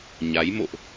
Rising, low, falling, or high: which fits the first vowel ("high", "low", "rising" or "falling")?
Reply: rising